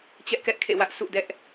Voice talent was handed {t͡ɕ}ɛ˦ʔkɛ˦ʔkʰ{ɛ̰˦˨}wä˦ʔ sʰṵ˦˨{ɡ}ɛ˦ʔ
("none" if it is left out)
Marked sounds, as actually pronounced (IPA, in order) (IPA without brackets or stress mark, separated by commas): t͡ɕ, ḛ˦˨, d